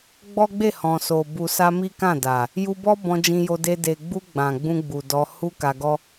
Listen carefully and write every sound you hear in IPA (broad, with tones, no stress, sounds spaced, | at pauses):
ɡ͡b ɔ˦ ɡ͡b e˦˨ h ɔ̃˨ s o˨ b u˨ s a˧ m i˦ k ã˦˨ d a˨ | j u˧ b ɔ˦ b ɔ̃˧ d͡ʒ ĩ˧ j o˧ d e˧ d e˨ ɡ͡b u˧ ɡ͡b ã˨ ɡ͡b ũ˧ ɡ͡b u˨ d ɔ˧ h u˦ k a˧ ɡ ɔ˦